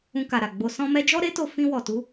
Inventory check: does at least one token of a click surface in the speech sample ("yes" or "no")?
no